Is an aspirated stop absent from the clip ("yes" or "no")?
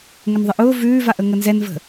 yes